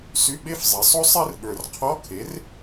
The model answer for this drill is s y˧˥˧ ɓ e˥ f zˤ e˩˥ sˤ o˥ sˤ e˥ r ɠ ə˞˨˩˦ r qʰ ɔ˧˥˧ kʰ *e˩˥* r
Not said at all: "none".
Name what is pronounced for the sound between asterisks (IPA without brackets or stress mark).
e˩˥